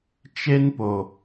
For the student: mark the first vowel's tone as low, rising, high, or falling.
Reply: high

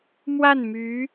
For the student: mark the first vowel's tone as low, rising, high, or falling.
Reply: falling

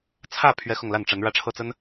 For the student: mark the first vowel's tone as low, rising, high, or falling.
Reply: falling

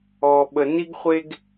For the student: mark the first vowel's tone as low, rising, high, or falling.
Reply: low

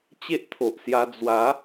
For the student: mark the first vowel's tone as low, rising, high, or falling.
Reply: high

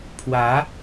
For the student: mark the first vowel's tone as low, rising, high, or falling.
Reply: rising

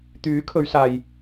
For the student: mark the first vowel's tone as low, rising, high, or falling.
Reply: rising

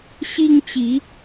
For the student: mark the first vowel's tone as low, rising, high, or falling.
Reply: high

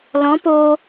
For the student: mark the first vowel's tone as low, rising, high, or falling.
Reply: rising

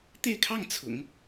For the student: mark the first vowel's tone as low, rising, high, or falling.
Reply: falling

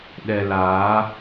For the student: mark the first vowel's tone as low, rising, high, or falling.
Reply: low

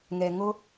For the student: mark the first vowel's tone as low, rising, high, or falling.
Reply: low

